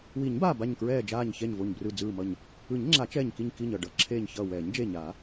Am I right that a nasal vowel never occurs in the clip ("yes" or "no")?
yes